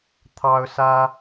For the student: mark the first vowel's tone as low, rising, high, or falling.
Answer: high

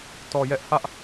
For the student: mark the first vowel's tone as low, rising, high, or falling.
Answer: low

